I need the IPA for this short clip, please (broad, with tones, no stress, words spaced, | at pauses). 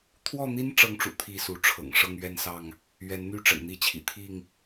t̪ʰwɔ˥˨n̪i˦n ʈ͡ʂɤ˦ŋʈ͡ʂṵ˨˩ t̪ʰi˥˨su˨˦ʈ͡ʂʰɤ̰˨˩ŋ ʂɤ˥˨ŋɥɛ˥˨nsɑ˥˨ŋ | ɥɛ˨˦nn̪y˥˨ ʈ͡ʂə̰˨˩nn̪i˥˨t͡ɕʰḭ˨˩ t̪ʰi˥˨ŋ